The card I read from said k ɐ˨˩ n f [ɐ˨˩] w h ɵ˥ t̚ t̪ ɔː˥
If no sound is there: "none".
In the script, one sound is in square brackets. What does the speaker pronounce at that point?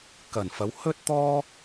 ɐ˨˧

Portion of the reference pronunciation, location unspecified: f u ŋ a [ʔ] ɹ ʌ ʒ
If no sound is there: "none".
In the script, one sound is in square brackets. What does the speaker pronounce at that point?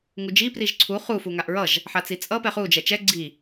ʔ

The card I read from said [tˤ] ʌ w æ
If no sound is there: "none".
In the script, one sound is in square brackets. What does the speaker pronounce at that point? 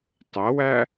tˤ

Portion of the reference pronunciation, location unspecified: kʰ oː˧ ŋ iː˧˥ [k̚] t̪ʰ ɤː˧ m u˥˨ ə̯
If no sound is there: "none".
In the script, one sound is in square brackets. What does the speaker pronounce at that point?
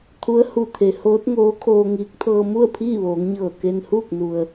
k̚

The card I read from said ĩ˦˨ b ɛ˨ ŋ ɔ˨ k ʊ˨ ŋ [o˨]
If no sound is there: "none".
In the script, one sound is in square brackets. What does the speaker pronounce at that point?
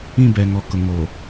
o˨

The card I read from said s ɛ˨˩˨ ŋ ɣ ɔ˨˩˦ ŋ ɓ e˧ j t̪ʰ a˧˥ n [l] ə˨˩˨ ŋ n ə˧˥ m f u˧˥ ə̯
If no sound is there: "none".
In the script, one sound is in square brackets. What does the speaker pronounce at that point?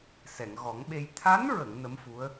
ɹ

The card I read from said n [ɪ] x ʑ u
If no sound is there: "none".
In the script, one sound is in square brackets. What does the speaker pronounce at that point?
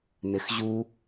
ɪ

